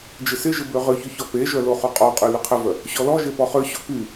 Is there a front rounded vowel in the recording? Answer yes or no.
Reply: yes